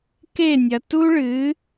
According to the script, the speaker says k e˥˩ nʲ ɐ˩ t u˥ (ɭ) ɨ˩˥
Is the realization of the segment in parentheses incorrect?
no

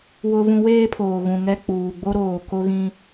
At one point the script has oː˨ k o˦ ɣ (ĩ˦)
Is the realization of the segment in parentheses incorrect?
no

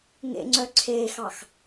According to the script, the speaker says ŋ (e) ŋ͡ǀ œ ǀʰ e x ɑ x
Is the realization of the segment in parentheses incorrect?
yes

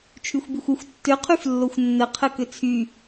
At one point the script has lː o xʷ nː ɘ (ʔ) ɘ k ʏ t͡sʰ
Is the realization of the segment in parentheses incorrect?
yes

